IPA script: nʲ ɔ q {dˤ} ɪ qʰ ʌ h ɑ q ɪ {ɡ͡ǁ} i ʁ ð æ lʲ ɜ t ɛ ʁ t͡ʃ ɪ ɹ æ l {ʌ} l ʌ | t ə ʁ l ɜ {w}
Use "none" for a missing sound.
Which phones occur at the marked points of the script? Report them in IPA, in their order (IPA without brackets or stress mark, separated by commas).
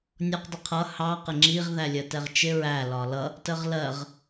dˤ, ŋ͡ǁ, ɒ, ʁ